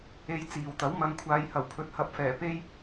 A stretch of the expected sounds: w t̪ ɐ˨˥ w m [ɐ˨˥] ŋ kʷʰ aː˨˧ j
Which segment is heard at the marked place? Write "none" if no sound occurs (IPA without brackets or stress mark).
ɐ˨˧